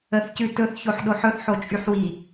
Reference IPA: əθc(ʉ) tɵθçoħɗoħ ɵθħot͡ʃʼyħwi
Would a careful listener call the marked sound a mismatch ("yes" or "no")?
no